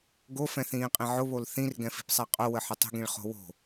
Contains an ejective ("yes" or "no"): yes